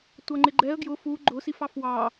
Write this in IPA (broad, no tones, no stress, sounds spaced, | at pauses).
tʷ ʌ ŋ͡ǃ ɪ ɡ͡ǃ ɛ ə̯ ɡ j ʊ f u ɡ͡ǃ ʊ s i f ɑ f w ɑ